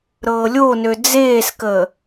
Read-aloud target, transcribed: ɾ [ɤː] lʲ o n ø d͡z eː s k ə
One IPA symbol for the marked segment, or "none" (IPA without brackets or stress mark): ɤː